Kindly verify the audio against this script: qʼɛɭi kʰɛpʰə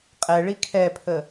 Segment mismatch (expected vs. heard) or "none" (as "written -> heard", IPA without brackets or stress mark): none